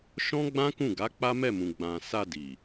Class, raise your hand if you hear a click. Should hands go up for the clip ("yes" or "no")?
no